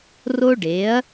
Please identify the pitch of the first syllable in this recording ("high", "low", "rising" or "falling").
high